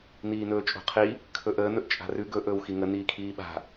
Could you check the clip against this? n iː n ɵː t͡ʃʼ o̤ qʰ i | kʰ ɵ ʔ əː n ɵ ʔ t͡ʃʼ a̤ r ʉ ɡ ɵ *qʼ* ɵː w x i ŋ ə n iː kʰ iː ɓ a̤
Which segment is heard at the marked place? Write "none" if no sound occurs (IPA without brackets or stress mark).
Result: ʔ